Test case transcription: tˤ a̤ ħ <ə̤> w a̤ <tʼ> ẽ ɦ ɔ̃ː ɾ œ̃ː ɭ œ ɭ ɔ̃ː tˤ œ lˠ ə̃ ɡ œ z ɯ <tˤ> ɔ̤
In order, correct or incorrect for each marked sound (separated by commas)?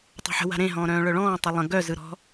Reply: correct, incorrect, incorrect